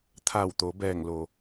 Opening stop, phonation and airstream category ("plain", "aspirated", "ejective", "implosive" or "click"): aspirated